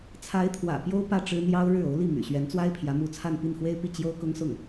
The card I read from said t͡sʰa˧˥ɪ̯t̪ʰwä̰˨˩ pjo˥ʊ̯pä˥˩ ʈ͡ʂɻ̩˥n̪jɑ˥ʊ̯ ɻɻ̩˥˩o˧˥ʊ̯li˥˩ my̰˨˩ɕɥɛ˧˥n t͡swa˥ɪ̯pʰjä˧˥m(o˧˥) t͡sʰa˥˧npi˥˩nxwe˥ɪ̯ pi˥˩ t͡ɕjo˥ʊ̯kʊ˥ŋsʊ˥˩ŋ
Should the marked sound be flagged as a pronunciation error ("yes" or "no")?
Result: yes